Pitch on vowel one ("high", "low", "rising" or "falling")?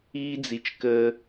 high